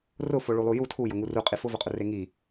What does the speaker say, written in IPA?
rʊ foɭulˠuju tʰujʊŋu ruqʼi fʊvʊqʼʊ reŋi

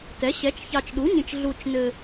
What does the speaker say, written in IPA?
tɛ˩˥ɕɛ˩˥t͡ʃ çɑ˨t͡ʃɗu˩˥ɲĩ˨t͡ʃ ɮu˨t͡ʃnɘ˨

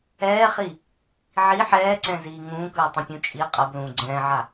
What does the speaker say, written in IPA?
ɛːχi | ʕi ħɛːǀɛ̃ziː ŋũːkɯːtˤɛ̃pʲũ t͡ʃʼi qʼʌblũː ɡ͡ǀɛ̃ːʕa

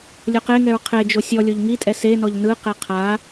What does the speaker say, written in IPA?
lʲoqeŋɛɹ qʰed͡ʒo sʲɔlʲoʎ ŋitʼɛ senɔʎ nɯqe qʰa

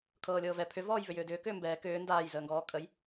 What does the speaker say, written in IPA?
kʰɤːlʲɤːvɛ pʰʏ vɔːjvʏjʏːdʏː kʏːmbɛː kʏː ndaːjzəːŋɡɔː kʼəj

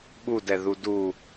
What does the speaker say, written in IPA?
ɓudɛðu du

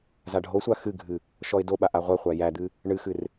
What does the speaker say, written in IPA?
zaɖʱosʷa xɨɡʱɨ | ʃɔɪ̯doɓa ʔaʁʷɜχʷæ jæd̪ɨ | ɳɨxɨr

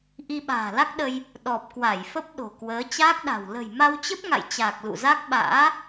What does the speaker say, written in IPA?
ʔi˧ɓa̤ː˨˩la˦˥k̚ɗə˧j | ɗɔ˨˩p̚kwa˧˩jfə˦˥p̚ ɗo̤˨˩kwəː˨˦ t͡ɕaː˦˥k̚ɗa̤˨˩w lə̤˨˩jma˧wt͡ɕə˦˥p̚ŋa̰˧˨j t͡ɕaː˨˩k̚lṵ˧˨za˦˥k̚ ɓa̰ː˧˥

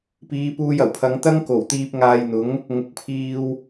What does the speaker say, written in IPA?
piː˨˧puː˧jɐ˨˩wpʰɐ˨˧ŋ t̪ɐ˥ŋko˨˩wt̪iː˧p̚ ŋaː˧jn̪ʊ˨˥ŋ | ŋʊ˨˥k̚pʰiː˧w

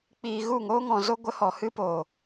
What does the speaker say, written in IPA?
k͡piː˧ ɣu˦˨ŋoː˦ŋɔ̃˧zo˦ ɡʷə˦hɔ˧hɨ˦ poː˨

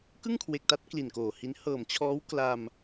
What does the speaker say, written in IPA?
kɯ˥˩ŋkʰwe˨˩k̚ta˦˥t̚ kli˨˩nkoː˨˩hi˦˥n hɤː˨˩mt͡ɕʰɔː˦˥w kla˧m

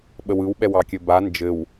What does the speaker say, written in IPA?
ɓəwɯwɓɛw ɑkʲɘba nd͡ʒɘw

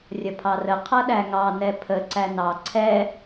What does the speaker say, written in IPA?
rʲʌpʰɑrə qʰʌɗæŋɑ nɛpʰə ǀænɑ ǀʰɛ

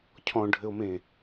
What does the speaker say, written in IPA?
cʰɔ̃ɖʱɘo̯mẽ

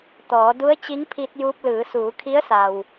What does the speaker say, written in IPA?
t̪ɔː˩˧ du˧˥ə̯ t͡ɕi˧˥ŋpʰi˧t̚juː˧p̚lɯː˩˧ suː˩˧kʰi˧˥ə̯sa˩w

